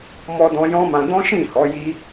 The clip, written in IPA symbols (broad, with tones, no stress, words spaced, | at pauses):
mɔ˧dɔ̃˧ jɔ̃˦mã˧ dɔ̃˦ʃĩ˦˨hɔ˨˦ji˦